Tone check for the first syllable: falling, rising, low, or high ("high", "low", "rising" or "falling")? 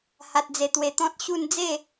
low